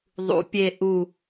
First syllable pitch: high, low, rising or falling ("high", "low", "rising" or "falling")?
rising